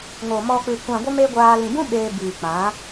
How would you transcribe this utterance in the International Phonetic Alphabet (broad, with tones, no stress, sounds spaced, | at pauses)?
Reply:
ŋ o˨ m ɔ˧ k͡p ɨ˨ kʷ ã˨ ɡʷ ə˧ m e˦ ɡʷ aː˧ l ĩ˨ b ũ˦ ɓ eː˧ b iː˨ k͡p ã˨˦